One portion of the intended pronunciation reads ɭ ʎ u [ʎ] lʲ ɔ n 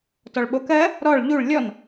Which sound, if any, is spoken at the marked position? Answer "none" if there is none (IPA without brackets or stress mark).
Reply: ɭ